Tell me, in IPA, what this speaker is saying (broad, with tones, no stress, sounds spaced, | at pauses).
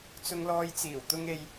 t͡s ʊ˧ ŋ l ɔː˧ j t͡s iː˨˩ w t̪ ʊ˥ ŋ e˧ j